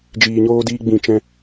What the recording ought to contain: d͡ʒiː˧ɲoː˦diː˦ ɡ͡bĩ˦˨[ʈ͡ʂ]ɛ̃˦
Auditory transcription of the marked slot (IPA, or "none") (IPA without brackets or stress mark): t͡ʃ